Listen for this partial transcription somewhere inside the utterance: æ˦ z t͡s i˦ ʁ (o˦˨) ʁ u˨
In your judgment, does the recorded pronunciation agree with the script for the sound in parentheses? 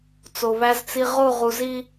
yes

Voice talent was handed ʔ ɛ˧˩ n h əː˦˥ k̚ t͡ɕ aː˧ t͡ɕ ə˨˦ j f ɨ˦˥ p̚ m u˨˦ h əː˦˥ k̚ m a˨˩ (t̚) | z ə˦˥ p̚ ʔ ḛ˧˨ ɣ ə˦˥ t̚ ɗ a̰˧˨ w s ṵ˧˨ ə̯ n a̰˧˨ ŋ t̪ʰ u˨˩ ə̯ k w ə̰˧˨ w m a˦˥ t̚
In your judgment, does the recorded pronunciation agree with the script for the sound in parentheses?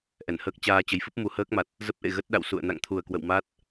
yes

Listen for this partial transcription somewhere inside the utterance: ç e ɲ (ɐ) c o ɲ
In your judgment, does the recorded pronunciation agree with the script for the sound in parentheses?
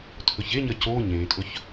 yes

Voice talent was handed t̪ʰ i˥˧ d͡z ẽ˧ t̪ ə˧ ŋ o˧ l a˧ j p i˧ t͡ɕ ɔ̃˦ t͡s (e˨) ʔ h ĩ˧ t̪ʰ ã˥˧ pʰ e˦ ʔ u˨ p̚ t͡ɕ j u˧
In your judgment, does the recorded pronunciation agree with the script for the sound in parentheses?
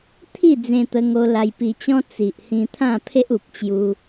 no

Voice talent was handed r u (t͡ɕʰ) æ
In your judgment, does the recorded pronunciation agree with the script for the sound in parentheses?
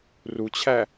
yes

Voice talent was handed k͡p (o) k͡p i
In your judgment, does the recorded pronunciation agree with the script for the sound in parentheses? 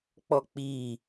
no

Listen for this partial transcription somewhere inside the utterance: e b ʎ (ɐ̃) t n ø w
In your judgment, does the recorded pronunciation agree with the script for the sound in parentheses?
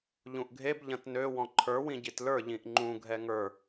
yes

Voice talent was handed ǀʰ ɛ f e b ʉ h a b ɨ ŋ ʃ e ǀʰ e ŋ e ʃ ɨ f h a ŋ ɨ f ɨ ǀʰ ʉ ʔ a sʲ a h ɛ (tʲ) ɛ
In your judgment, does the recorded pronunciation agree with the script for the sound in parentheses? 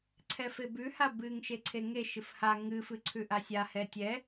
yes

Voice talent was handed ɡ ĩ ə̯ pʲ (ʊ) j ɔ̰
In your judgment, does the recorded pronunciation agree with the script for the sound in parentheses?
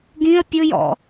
yes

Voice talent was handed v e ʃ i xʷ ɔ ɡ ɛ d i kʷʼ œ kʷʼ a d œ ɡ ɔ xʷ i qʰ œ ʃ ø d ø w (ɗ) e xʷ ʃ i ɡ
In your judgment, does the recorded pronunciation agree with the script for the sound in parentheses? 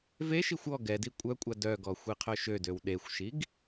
yes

